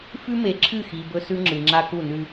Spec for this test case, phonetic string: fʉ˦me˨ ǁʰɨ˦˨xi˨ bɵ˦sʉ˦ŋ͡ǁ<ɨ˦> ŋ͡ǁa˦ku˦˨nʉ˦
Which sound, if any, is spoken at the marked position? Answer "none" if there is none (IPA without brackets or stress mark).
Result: ɨ˨